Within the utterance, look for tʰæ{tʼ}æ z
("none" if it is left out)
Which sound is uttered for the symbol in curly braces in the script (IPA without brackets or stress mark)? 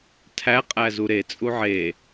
qʼ